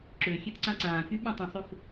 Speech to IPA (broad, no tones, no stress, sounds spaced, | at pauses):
ǁ ø xʲ e t ǀ ã ǀ ãː k y ɓ ẽ tˤ ĩ sˤ ø x